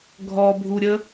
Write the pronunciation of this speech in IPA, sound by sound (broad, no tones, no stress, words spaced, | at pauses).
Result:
ɡʱɔbʱuɾʲə